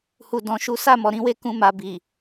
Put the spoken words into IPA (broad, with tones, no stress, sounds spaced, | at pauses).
h u˨ d ɔ̃˨˦ ʃ u˦ s a˦˨ m ɔ˨ ɾ ĩ˨˦ w e˦˨ k ũ˧ m a˨ b i˨